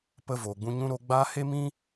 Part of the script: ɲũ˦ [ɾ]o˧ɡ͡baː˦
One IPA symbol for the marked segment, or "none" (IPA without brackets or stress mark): ɾ